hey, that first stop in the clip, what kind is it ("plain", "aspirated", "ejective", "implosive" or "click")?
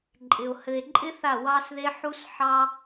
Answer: click